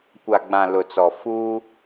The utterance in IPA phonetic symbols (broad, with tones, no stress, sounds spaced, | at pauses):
kʷ a˨ ɡ͡b ã˨ l ʊ˨ t͡s ɔ˨ f uː˦